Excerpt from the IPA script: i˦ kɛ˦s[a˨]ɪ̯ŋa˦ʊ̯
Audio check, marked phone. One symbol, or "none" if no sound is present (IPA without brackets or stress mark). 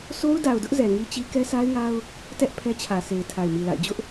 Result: a˦